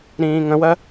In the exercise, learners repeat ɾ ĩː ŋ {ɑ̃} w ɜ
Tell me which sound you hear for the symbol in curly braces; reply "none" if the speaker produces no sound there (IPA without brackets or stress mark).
ə̃